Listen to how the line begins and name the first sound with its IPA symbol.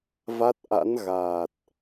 v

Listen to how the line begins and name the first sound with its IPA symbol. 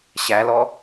ɕ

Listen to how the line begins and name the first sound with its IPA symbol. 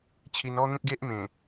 t͡ɕʰ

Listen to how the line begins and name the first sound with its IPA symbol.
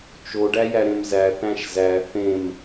t͡ʃ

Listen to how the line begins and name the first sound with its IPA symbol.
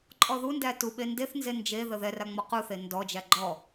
ǃʼ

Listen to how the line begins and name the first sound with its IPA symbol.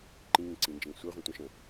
ǃ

